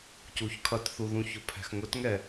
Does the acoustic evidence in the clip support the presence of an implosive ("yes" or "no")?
no